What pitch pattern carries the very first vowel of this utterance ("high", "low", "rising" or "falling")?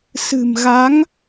low